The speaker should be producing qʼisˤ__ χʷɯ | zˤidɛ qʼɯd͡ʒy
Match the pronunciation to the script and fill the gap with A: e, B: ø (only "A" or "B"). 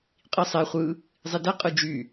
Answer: A